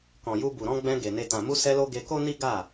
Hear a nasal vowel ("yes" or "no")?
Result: yes